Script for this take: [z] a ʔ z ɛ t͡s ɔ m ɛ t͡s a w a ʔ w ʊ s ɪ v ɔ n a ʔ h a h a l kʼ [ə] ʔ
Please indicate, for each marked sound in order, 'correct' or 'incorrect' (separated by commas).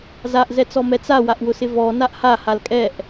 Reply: correct, incorrect